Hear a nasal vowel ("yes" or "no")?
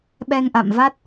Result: no